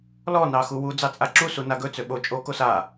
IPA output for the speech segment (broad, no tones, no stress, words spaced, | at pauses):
lɔ nɑxuwu d͡zɑt͡sʼaǁu sunaɡɵ t͡søɓo t͡ʃʼo kosa